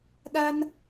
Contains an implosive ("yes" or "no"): yes